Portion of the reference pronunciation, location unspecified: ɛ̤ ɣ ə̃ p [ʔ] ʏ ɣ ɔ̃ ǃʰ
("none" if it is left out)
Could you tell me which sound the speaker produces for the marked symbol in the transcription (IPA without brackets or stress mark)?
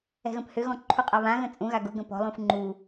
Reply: h